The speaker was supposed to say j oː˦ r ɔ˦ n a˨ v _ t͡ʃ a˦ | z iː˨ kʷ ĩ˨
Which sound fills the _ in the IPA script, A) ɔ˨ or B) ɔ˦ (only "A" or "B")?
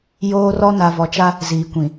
A